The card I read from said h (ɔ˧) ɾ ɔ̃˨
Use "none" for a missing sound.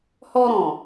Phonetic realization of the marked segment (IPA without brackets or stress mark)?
ɔ˧